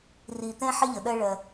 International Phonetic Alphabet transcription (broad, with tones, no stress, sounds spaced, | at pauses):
r i˨ t̪ ɛ̃˦ ħ ɪ˦ ʎ ə˨ ɗ ɜ˦ ɭ ɜ˦